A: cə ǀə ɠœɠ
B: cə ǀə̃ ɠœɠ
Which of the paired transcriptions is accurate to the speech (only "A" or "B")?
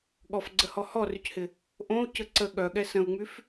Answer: A